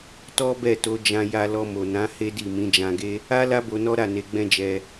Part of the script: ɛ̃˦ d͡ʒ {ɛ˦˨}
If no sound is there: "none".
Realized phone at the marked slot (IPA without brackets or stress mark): ɛ˧